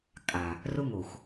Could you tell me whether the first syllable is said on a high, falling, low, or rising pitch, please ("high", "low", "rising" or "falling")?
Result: low